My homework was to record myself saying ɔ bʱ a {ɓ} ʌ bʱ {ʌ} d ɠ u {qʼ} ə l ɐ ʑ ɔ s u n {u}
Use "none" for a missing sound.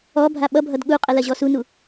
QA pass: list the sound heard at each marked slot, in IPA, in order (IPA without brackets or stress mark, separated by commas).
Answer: ɓ, ʌ, qʼ, u